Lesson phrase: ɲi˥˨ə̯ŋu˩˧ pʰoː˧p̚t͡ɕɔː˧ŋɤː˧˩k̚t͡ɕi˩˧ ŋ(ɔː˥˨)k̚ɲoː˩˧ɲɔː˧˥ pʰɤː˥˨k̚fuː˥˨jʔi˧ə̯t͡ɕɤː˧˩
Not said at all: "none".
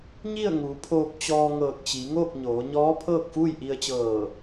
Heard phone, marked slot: oː˥˨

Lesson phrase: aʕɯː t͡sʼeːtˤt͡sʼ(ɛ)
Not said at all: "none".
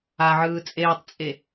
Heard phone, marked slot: e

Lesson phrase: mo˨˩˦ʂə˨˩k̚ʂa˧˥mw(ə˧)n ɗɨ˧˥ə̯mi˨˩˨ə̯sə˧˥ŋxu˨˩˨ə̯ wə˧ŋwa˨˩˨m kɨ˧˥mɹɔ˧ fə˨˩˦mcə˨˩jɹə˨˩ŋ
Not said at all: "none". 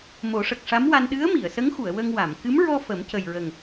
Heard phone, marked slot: a˧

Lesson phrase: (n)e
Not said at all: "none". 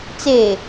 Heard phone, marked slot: t͡s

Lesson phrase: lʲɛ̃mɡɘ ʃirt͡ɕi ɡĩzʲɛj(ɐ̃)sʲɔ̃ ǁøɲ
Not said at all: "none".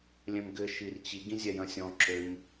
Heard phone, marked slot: ɐ̃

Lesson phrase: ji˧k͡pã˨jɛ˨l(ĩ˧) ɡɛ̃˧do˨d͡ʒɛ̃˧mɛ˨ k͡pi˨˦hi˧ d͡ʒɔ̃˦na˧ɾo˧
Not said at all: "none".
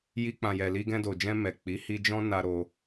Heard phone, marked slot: i˧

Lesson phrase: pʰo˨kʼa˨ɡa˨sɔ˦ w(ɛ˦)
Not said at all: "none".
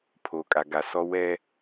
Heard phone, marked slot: ɛ˦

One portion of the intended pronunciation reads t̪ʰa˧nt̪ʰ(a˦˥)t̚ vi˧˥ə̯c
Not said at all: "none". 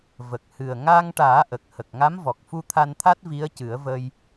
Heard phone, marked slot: a˦˥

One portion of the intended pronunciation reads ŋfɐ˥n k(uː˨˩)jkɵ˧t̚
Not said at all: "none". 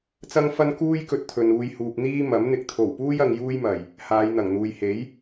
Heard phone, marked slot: uː˥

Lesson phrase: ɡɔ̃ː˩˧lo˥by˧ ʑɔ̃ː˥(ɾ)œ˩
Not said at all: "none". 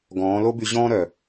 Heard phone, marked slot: ɾ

